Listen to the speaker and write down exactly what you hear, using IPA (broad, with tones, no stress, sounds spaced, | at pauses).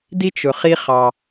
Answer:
d i˥ t͡ʃ ʊ˨ χ i˦ χ ɑ˨